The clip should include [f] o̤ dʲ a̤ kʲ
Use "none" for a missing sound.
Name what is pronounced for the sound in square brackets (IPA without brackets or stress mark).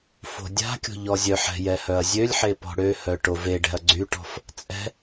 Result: f